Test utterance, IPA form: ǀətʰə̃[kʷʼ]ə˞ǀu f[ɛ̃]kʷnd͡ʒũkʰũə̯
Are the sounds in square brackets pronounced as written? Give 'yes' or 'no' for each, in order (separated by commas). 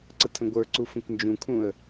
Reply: no, no